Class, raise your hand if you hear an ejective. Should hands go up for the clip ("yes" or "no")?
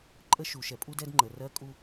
yes